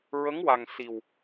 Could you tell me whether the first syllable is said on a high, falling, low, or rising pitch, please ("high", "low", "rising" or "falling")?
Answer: rising